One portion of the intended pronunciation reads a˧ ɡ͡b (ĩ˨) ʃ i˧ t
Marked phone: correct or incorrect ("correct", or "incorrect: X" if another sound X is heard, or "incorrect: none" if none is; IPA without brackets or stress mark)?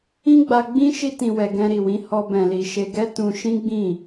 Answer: incorrect: ĩ˦